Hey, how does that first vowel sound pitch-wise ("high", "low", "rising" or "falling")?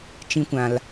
high